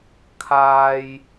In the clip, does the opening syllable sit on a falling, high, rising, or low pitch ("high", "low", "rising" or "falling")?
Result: low